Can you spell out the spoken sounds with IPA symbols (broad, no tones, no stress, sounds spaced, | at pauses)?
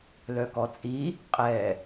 l œ k ɔ t͡sʼ i | qʼ ɛ